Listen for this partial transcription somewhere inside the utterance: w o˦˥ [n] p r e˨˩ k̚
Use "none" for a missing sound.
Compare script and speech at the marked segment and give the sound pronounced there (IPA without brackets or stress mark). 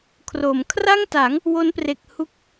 n